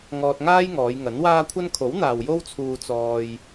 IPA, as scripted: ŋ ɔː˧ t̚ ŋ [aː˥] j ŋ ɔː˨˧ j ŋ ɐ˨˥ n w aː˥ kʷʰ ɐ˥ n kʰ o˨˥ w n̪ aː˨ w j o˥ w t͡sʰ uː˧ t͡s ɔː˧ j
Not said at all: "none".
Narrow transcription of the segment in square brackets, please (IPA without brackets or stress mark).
aː˥